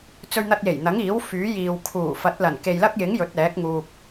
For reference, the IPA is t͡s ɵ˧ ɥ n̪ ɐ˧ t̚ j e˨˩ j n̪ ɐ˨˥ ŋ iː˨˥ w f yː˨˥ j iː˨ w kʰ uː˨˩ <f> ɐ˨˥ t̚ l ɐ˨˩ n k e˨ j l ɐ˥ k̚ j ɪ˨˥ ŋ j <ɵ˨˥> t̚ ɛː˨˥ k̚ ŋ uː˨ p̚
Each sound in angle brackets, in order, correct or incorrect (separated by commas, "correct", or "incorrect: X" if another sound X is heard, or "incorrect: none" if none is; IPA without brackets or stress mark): correct, correct